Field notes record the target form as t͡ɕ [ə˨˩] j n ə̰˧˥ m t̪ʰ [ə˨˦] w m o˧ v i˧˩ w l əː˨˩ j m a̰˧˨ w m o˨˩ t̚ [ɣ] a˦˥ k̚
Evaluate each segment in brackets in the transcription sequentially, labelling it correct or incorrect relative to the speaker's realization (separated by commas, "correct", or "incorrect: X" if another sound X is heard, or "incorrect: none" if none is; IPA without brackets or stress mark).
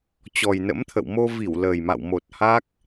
incorrect: ɔ˨˩, incorrect: ə̰˧˨, incorrect: h